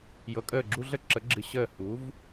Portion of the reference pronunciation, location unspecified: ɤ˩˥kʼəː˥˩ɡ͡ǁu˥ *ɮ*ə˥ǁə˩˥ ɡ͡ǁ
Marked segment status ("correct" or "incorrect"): correct